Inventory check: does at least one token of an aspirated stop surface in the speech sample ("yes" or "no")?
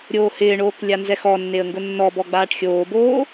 no